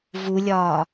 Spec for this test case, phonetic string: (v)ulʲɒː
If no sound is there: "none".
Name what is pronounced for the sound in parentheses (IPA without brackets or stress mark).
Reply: v